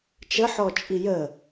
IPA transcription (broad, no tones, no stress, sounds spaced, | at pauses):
t͡ʃ ə ħ ɔ t͡ʃʼ i j ə